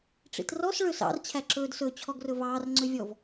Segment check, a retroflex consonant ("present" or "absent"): present